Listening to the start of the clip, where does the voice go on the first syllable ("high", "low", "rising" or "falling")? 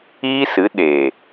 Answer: high